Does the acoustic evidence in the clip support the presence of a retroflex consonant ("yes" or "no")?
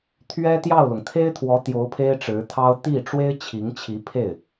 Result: yes